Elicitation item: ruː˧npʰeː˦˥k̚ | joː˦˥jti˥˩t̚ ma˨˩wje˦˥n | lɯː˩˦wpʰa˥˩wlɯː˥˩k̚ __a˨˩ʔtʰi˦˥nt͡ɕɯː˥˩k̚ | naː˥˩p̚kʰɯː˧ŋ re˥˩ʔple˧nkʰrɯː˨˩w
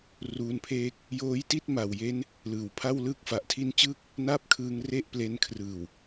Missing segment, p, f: f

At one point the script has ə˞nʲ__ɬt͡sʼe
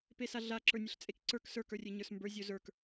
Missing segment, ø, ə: ə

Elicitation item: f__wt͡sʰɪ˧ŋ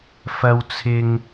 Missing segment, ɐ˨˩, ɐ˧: ɐ˧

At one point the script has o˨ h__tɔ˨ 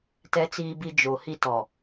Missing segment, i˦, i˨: i˦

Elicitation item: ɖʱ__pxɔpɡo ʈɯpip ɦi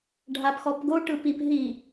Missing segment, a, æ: a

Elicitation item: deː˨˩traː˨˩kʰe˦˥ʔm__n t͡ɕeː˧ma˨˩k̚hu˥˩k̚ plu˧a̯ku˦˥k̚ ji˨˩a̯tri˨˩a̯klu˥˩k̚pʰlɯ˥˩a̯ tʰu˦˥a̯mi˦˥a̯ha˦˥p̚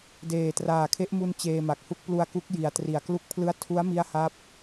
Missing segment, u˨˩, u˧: u˧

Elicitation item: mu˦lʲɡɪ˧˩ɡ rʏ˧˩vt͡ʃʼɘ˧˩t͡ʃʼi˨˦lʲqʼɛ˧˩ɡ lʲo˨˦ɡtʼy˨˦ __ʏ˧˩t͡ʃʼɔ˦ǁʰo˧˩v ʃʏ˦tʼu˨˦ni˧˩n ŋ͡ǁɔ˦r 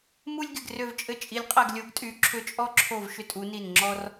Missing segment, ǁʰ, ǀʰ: ǁʰ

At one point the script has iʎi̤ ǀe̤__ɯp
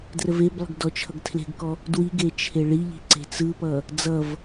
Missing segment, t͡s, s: t͡s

